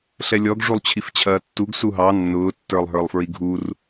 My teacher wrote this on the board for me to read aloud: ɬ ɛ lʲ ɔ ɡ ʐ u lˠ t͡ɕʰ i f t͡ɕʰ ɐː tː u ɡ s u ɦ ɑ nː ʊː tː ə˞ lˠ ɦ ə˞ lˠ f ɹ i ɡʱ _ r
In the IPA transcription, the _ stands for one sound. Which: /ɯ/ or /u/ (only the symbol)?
u